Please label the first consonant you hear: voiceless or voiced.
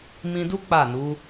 voiced